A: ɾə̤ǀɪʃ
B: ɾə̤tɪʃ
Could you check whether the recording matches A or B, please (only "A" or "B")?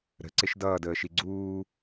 A